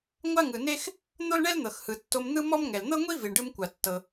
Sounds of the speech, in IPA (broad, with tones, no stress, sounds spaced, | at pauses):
ŋʷ a˥ ŋ ɯ˩ n e˥ x | n̪ o˥ l ɳ ɛ˥ l n̪ ɤ˩ x h ɯ˩ tː o˧ m n̪ ɯ˥ m ɔ˥ m ŋ ɛ˩ l n̪ ɤ˥ ŋʷ i˥ v i˩ ɳ ɖ ɯ˧ m kʷ a˩ tː ɤ˩